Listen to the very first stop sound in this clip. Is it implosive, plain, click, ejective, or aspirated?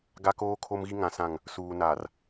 plain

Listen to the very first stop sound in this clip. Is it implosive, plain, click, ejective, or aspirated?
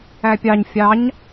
plain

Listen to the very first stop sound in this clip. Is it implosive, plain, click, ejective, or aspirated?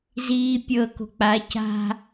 plain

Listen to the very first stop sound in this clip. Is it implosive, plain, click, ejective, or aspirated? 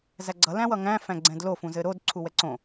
click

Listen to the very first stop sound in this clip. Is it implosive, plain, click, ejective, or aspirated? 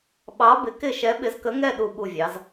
implosive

